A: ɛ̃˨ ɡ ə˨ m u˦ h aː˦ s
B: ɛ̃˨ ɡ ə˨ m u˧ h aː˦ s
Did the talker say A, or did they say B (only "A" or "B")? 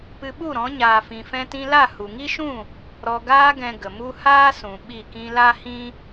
A